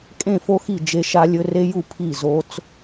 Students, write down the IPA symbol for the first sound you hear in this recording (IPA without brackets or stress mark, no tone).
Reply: kʼ